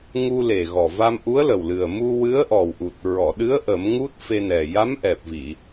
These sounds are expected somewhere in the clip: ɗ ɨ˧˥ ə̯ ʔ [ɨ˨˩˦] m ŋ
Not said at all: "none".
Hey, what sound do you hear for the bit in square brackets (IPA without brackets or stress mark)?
ə˨˩˦